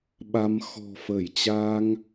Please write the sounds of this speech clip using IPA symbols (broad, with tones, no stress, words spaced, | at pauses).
ɓa˧m xɔ̤˨˩fə˧˩jt͡ɕa˧ŋ